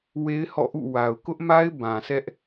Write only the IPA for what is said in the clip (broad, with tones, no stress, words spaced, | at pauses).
we˦ɪ̯hɔ̰˦˨ʔṵ˦˨ wa˨ʊ̯kʊ˦ʔma˦ɪ̯ bã˨sʰɛ˦ʔ